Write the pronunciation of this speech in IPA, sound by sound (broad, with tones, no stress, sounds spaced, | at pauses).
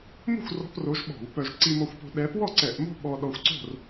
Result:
m o̤˥˨ xʷ r ɔ̤˧˥˧ p r o˧˥ ʒ ɓ ɔ̤˧˩˧ w p œ˧ ʒ ǀ i˧ m ɔ˧ xʷ p o̤˧ ɗ ɛ˧˥ p w ɔ˥˨ ǀ ɛ˧˩˧ ʔ m o̤˥ ɓ ɔ˧ ɗ ɔ˧ xʷ ǀ o̤˥˨ r